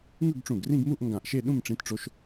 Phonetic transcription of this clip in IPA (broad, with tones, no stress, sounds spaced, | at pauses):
ŋ ɯ˥˧ ɡ ʈ͡ʂ ũ˧˩ ɡ r ĩ˥˧ ɡ m u˥˧ ʔ ŋ ɡ ã˧˩ ʔ ʃ e˥˧ ɗ ũ˥˧ m ʈ͡ʂ ĩ˧˥ t ʈ͡ʂ o˧˥ ʃ